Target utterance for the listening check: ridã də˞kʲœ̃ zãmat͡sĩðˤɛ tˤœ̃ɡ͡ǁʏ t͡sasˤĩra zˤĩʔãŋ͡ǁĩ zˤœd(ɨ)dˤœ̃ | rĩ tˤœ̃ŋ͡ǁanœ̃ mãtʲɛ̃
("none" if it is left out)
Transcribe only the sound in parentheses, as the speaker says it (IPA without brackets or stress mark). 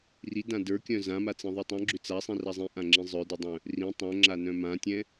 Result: ʏ